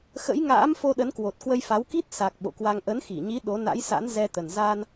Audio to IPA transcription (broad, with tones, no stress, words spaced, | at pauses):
xə̰˧˥jŋa̰ː˧˥m fo˧ɗə˨˦n kwo˨˩t̚kwə˧jfa˨˦wki˦˥t̚ sa˨˩k̚ ɓo̰˧˨kwa˧ŋ ʔə˨˦nxi˧˩ɲi˨˦ ɗo˨˦ na̰˧˥jsa̰˧˥n zɛ˧t̪ə˨˩n zaː˧n